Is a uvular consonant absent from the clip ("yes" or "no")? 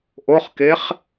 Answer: no